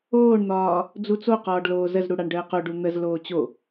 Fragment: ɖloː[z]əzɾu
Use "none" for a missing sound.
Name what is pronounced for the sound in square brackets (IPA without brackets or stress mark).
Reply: z